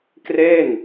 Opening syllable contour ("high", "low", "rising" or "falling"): falling